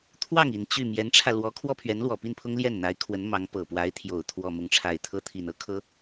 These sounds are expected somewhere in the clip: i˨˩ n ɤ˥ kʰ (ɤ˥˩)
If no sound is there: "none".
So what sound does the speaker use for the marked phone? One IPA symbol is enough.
ɤ˥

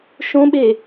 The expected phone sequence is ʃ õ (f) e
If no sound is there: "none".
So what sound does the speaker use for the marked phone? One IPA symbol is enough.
ɓ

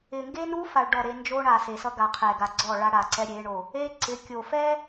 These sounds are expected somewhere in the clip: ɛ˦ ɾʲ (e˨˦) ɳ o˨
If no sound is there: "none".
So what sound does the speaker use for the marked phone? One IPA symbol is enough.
e˨˦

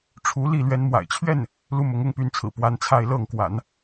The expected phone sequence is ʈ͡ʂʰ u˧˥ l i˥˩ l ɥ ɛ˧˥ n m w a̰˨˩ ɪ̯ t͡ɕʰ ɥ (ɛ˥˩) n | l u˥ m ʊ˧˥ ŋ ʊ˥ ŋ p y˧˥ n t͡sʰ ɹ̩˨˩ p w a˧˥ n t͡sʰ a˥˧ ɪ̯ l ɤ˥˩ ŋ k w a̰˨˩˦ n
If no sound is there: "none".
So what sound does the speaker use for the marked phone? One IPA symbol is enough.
ɛ˥˩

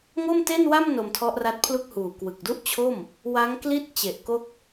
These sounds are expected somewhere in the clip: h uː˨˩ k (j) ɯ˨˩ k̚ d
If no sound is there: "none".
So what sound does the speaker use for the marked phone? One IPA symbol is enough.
w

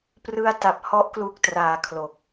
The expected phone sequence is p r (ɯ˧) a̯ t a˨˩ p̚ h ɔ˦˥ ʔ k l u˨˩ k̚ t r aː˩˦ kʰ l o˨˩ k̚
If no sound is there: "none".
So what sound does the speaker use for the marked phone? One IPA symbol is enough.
ɯ˧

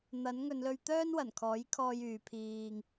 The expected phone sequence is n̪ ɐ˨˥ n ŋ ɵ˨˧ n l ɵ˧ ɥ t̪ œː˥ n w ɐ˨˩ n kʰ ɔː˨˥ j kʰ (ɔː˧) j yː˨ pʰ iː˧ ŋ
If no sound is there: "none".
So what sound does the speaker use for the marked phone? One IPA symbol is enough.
ɔː˧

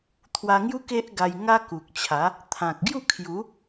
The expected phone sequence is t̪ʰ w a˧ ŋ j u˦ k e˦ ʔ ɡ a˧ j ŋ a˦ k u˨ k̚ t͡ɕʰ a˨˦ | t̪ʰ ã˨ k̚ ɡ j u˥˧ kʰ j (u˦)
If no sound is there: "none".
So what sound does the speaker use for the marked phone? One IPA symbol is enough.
u˨˦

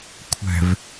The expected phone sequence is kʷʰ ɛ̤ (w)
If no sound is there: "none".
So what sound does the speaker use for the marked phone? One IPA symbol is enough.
v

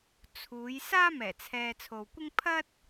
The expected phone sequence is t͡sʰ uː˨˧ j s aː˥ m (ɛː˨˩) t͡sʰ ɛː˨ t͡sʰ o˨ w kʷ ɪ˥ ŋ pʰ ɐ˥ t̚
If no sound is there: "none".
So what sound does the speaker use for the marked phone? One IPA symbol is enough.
ɛː˨˩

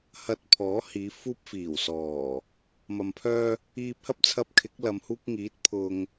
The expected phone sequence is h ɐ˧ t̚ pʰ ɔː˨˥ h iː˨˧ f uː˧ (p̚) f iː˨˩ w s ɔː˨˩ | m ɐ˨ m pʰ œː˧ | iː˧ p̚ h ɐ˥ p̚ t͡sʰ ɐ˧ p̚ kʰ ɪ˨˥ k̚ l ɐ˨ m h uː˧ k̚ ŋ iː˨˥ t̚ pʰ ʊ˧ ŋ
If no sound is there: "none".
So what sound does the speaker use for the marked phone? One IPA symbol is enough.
p̚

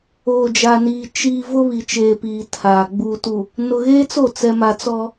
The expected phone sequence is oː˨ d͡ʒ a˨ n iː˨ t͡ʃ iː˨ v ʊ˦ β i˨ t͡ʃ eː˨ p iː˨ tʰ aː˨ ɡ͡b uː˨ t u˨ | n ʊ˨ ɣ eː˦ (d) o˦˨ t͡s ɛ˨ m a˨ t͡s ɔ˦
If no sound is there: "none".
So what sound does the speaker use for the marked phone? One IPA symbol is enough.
t͡s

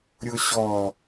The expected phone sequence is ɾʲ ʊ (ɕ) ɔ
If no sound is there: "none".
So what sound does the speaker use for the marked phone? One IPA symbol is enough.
ɕ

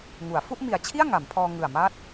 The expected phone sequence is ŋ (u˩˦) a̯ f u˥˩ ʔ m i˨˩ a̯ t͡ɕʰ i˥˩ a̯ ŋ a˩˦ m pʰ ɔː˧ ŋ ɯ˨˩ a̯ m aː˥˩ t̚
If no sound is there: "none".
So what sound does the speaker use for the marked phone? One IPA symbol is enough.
u˩˦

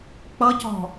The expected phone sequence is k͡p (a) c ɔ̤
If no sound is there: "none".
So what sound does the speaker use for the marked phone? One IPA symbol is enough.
ʌ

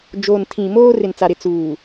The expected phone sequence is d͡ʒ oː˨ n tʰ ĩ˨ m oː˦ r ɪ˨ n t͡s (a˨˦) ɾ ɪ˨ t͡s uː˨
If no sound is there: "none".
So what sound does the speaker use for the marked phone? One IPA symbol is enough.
a˨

